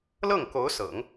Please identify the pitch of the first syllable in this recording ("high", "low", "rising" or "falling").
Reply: falling